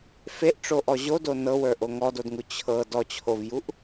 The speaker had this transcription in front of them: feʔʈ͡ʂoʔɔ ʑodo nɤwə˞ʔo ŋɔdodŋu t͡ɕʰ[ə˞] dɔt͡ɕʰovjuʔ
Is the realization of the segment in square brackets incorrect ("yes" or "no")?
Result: yes